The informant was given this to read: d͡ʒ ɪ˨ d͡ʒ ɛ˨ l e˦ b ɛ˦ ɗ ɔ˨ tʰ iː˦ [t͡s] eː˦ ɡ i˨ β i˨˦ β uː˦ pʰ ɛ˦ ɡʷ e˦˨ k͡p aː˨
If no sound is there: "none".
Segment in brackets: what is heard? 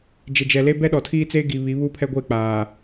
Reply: t͡s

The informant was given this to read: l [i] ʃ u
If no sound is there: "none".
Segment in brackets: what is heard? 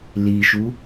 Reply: i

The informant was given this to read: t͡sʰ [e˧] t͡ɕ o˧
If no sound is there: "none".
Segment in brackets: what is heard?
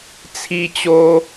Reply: i˧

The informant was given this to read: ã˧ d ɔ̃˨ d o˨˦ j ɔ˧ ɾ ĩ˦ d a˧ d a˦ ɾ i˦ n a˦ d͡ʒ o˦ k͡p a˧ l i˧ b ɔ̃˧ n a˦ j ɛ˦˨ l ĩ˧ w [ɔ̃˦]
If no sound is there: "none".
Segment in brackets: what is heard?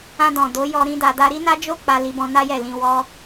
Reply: ɔ˦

